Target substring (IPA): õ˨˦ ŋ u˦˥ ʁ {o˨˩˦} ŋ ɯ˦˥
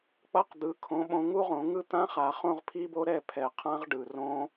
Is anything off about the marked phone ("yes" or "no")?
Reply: yes